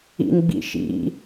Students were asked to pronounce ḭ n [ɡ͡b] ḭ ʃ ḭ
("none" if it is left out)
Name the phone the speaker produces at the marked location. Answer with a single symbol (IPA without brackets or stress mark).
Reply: ɡ͡b